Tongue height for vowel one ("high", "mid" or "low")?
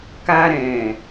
low